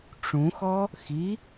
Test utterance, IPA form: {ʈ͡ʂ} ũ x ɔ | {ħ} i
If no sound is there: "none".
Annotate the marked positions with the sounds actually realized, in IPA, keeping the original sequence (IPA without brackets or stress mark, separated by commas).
ʈ͡ʂ, x